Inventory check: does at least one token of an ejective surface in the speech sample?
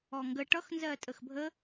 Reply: yes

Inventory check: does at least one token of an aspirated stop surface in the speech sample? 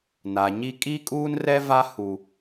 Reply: no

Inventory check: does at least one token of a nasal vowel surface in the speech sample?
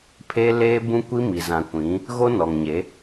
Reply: yes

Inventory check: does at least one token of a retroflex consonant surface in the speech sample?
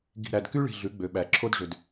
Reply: yes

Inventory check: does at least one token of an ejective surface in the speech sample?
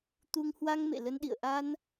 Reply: no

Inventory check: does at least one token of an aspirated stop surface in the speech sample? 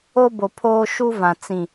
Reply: yes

